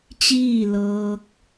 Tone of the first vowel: falling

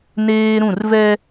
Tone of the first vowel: high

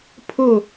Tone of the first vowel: falling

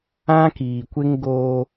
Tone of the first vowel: high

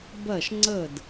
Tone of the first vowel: falling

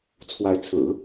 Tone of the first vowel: rising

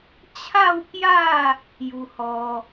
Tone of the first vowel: falling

